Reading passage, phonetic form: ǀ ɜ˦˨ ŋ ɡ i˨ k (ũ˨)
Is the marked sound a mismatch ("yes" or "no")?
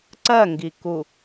yes